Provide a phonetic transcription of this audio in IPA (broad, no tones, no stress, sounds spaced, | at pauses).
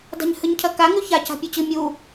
d a̤ ɲ h ɨ ɲ cʰ ɐ k a ŋ ʉ ç a c a̤ pʲ o t͡ɕ ɨ mʲ u